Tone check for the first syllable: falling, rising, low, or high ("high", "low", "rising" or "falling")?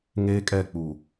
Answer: high